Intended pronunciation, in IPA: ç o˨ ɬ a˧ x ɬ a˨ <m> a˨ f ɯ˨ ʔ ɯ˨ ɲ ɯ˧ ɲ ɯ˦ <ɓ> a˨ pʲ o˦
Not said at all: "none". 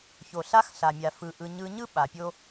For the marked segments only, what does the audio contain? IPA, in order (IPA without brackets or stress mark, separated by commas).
mʲ, ɓ